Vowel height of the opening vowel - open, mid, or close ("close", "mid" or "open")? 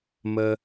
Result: mid